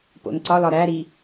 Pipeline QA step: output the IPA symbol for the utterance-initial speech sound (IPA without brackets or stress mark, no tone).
p